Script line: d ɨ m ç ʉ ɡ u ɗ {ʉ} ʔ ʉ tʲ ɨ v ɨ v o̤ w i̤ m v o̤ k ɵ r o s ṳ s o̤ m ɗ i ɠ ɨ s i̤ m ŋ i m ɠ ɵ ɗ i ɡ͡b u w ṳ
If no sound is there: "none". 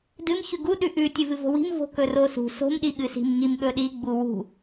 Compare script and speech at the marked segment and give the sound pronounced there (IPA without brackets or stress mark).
ʉ